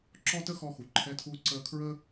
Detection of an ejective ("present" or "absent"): absent